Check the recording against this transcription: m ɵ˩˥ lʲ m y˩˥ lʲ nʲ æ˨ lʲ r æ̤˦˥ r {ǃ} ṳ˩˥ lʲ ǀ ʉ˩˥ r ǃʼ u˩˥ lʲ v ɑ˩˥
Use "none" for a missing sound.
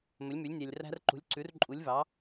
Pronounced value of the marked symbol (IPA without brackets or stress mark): ǃ